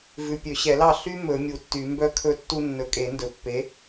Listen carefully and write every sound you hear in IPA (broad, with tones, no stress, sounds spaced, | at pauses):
v ʉ˨ pʲ ø˨˩˦ ɕ ɛ˨˩˦ l ɑ˥˨ ɬ y˦ m ɵ˨˩˦ mʲ u˨ tː y˨˩˦ m b œ˦ kʰ ɵ˦ tː u˦ nː ɵ˨ kʼ e˨˩˦ n d ɵ˨ pː e˨˥